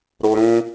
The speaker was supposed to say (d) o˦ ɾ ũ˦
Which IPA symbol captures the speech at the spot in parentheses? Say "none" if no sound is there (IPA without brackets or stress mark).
ɾ